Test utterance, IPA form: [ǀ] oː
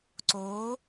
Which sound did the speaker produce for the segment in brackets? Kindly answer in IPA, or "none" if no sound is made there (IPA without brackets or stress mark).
ǀ